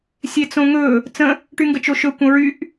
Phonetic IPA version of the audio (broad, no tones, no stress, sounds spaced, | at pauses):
sʲ e t͡s õ ŋ ɵ | t͡s ə̃ | ʈ y ŋ ɡ ə t͡ʃ o ʃ ɵ kʷ ə̃ ɹ y ʔ